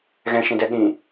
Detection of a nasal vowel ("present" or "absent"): present